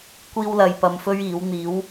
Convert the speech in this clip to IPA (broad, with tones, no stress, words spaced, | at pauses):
kʷiː˥wlɐ˧jpɐ˧mfɵ˥ɥ iː˨˥w n̪iː˨˥w